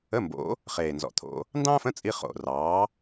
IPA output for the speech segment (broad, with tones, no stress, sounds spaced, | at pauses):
ə˧˥˧ m b o̰˨˥ | χ eː˨˩ n z ɔ̰˨˩ t̪ʰ o̰˧ | n d ɑ̃ː˥ f ə̃˧˥˧ t͡sʼ i˧ χ o̰˨˩ r ɑː˨˥